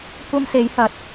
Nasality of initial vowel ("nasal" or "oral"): oral